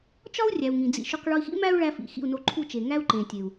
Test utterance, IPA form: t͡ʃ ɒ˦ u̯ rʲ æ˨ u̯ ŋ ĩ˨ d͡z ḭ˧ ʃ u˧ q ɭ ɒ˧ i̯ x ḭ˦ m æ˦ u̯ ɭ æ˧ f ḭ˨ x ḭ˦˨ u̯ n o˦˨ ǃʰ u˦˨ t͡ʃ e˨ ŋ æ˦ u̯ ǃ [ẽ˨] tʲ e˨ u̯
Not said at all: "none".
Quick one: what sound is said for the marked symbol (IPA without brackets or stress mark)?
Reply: ẽ˨